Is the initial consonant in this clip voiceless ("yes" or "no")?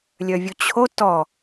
no